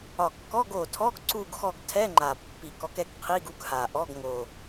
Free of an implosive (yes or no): yes